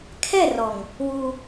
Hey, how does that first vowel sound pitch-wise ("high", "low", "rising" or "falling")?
falling